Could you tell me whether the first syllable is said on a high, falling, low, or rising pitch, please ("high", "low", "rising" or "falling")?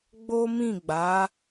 high